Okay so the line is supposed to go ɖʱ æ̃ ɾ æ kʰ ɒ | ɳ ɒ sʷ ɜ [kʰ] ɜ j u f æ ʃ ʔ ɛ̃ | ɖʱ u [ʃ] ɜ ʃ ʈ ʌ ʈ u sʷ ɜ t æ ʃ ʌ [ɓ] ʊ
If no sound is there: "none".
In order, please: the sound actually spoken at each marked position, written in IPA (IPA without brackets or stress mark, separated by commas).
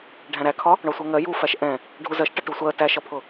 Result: ŋ, z, pʰ